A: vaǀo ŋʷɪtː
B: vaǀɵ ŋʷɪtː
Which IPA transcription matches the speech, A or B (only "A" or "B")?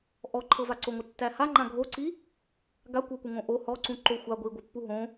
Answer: A